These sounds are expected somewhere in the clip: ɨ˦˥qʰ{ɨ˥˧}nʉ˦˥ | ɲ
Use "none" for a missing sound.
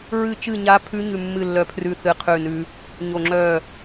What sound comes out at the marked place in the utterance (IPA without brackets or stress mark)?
ʉ˥˧